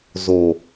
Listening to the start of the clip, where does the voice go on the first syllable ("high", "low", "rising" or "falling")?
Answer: low